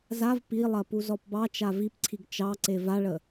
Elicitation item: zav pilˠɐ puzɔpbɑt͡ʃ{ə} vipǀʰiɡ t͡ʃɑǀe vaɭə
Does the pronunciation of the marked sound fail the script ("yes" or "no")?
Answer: yes